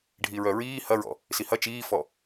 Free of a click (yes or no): yes